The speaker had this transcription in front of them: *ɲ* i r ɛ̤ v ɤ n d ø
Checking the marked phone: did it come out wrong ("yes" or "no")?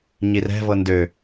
no